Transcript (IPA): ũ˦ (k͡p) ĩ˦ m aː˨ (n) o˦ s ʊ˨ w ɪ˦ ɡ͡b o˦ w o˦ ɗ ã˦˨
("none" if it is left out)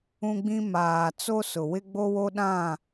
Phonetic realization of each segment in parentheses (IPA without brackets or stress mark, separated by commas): ɡ͡b, t͡s